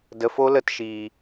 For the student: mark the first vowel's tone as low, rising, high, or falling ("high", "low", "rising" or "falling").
low